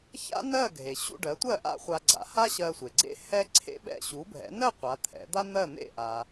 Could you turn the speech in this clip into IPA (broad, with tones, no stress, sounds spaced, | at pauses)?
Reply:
ç a̰˥ n ɜ˥˩ ɡʱ e˩ ɕ ṵ˥˩ ɖ ɜ˩˥ tʷ ɜ˥˩ ʔ a̰˥˩ χʷ a˧ ɡ͡ǀ a̰˩˥ h a˥ ɕ ɜ˧ sʷ e˩ ɡ͡ǀ ḛ˥ h ɛ˥ ǀʰ ḛ˥ ɓ ɛ̰˥˩ ɕ u˩˥ bʱ ɛ̰˩˥ n ɜ˥˩ qʷ a˩˥ t̪ʰ ɛ̰˩˥ d̪ a˥ n̪ ɜ˥˩ n̪ ḛ˥˩ ʔ a˩